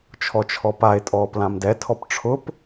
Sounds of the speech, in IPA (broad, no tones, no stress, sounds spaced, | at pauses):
t͡ʃʰ ɔ t͡ʃʰ ɔ p a e̯ tʼ ɔː p l ã m d ɛ tʰ ɔ p ʈ͡ʂʰ ʊ p